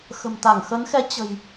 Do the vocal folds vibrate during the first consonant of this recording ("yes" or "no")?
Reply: no